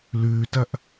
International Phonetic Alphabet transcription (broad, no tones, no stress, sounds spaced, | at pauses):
l ʉː t ɐ ʔ